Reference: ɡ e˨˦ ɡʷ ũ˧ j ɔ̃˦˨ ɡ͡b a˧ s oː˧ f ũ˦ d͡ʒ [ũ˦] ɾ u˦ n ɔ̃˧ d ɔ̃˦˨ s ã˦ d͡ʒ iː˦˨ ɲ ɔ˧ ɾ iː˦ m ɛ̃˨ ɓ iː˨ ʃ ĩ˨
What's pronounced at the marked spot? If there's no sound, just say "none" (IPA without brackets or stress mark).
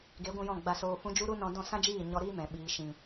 u˦